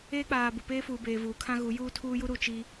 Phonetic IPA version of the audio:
eː˦ k͡p aː˨ b u˨ p eː˦ f uː˨ b eː˨ v uː˨ kʰ ã˦ ɣ u˨˦ j uː˦ tʰ uː˦ j u˦ ɾ u˨ t͡ʃ i˦

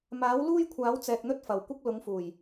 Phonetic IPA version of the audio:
m aː˨˥ w l uː˥ j kʷʰ aː˨˥ w t͡s ɛː˧ k̚ n̪ ɵ˥ t̚ f ɐ˨ w kʷ ɪ˥ k̚ l ʊ˨˧ ŋ f uː˨˩ j

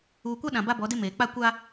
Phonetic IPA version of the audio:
uː˨ kʷ a˦ ɗ ã˨ b a˦ b ɔ˨˦ d e˦ m eː˨ k͡p a˦˨ kʷ a˦

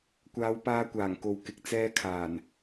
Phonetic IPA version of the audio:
kʷ aː˨˧ w p aː˧ kʷ aː˨˩ ŋ k o˨ w k ɪ˨ k̚ t͡s ɛː˧ kʰ aː˨˩ n

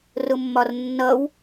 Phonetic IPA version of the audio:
r ʊ mː ɒ r nː ʌ w

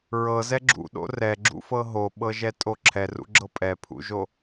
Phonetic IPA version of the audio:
ɹ ɤ z ɛ ɡ͡ǁ ṵ ɗ o̰ r ɛ ɡ͡ǁ ṵ f ɤ ɦ o ɓ ɤ ʒ ɛ tʼ o ǁʰ ɛ r ṵ ɡ͡ǁ ɤ pʼ ɛ pʰ ṵ ʒ o

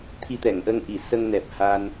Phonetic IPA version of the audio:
t̪ʰ i˧ t̪ ɛ˨˩˨ ŋ ʔ ə˧ ŋ ʔ i˨˩˨ s ə˧ ŋ n ɛ˨˩ p̚ h a˧ n

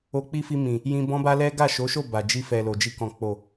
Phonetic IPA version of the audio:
o˧ k͡p i˦ f i˧ m ĩ˨ | j ĩ˧ b ɔ̃˦ b a˦ l ɛ˦ ɡ a˦˨ ʃ o˨˦ ʃ o˦˨ b a˨ d͡ʒ i˧ f ɛ˨ l o˨ d͡ʒ i˧ k ɔ̃˨ k͡p o˨

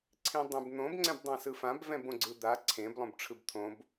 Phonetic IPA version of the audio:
ǀʰ ĩ dˤ ẽ b n̪ õ b ŋ͡ǀ ɛ̃ b dˤ ã s ɯ f ã b v ɛ̃ b õ ɡ͡ǀ ɯ d̪ a ǀʰ ẽ b lˠ õ b ʈ͡ʂʰ ɯ b t̪ʰ õ b

